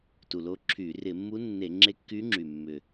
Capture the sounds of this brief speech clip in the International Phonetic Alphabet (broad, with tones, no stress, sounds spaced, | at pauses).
t u˨˩ l o˧˥ ǁʰ y˧˩˧ r ɪ˧˩˧ mː u˧˥ nː e˧˩˧ ŋ͡ǁ e˧˥ kː y˧˥ ŋ͡ǁ y˨˩ mː ʏ˨˩